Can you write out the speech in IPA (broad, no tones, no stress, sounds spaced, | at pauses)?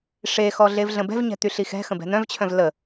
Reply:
ʂ e x ɔ ɮ e v ɮ ə̃ b ɛ̤ v ɲ ɛ̤ t̪ y ɬ i x ɛ̤ x ə̃ b ɛ̤ n̪ œ̃ v t͡ɕʰ œ̃ v l ə